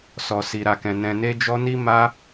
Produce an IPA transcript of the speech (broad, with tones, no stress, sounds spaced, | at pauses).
s ɔ˧ s i˧ ɾ a˧ k ɛ̃˧ n ɛ̃˧ n e˦ d͡ʒ ɔ˦ n i˦ m a˦